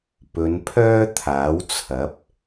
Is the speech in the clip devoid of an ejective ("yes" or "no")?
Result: yes